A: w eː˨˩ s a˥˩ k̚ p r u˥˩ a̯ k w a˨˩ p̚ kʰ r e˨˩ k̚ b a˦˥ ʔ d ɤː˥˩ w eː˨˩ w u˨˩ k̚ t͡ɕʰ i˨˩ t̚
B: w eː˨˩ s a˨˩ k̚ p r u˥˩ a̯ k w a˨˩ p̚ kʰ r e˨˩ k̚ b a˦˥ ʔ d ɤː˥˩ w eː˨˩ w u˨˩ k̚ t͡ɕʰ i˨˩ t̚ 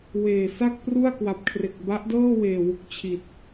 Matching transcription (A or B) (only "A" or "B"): A